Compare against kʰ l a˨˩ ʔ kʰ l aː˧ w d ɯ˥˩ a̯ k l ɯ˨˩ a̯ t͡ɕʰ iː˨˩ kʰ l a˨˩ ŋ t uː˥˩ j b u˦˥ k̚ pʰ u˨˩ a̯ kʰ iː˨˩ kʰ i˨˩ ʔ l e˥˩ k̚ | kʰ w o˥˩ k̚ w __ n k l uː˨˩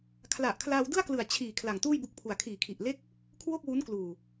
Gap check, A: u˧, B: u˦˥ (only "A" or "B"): B